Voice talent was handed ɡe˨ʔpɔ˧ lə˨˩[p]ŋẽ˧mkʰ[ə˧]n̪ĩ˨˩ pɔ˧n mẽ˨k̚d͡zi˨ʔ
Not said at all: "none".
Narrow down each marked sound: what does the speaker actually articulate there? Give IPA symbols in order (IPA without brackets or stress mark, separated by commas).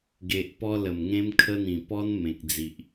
m, ə˧